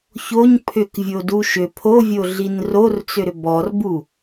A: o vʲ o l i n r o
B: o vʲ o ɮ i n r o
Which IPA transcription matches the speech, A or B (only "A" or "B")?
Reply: B